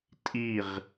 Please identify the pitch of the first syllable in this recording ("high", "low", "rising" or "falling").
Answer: falling